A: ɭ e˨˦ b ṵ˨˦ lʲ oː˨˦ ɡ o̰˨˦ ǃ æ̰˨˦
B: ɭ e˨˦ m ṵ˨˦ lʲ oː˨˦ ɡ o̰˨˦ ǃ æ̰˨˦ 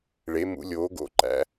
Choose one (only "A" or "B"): B